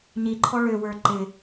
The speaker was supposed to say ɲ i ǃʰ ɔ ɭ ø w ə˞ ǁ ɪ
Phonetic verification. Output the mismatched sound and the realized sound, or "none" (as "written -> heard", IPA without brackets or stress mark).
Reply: ǁ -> ǃ